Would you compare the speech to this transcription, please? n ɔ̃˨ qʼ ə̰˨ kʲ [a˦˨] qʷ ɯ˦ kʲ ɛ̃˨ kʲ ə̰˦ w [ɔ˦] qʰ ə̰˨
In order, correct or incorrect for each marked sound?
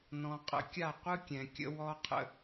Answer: correct, correct

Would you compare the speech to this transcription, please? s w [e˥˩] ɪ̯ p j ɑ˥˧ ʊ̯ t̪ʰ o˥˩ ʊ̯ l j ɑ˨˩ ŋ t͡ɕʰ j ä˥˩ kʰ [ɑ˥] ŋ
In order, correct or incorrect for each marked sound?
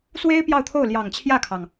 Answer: incorrect: e˥, incorrect: ɑ˩

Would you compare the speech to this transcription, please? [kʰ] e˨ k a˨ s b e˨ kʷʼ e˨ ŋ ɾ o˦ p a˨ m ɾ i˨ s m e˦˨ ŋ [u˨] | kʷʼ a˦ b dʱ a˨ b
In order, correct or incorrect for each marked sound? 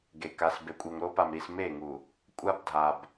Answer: incorrect: ɡ, correct

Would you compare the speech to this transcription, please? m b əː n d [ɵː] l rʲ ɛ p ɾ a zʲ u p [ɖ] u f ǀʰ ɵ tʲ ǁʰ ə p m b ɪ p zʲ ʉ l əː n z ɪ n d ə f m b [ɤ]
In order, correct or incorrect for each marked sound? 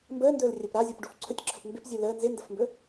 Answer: correct, correct, incorrect: ɵ

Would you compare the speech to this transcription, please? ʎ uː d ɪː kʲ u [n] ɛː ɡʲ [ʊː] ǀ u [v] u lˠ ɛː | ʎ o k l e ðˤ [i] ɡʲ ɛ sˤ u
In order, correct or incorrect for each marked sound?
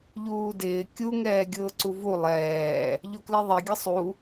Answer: incorrect: ŋ, correct, correct, incorrect: e

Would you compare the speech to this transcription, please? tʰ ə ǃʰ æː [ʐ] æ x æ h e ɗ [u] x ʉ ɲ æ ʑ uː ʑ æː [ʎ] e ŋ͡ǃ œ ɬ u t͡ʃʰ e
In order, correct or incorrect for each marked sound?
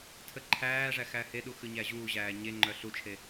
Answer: correct, correct, incorrect: ɲ

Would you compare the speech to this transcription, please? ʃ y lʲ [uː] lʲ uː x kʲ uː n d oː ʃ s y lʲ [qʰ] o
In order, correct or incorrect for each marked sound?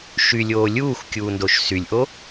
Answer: incorrect: oː, incorrect: ʔ

